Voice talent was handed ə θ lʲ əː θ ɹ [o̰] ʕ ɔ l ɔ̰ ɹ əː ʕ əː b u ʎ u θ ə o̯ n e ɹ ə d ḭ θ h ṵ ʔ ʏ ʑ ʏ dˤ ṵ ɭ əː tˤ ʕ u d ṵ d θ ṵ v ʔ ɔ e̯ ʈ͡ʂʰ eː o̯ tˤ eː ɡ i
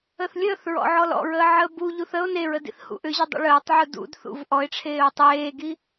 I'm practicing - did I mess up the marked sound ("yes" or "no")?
yes